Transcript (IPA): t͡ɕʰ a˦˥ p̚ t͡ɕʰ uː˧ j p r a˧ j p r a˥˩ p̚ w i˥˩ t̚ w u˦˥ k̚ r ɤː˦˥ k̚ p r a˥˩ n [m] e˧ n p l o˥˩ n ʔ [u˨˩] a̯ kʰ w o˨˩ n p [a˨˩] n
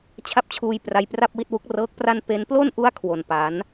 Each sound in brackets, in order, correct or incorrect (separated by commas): incorrect, incorrect, incorrect